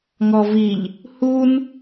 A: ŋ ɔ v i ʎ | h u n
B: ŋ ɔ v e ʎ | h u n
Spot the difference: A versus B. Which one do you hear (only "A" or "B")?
A